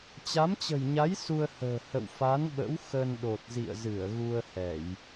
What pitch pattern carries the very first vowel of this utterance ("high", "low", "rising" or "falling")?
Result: rising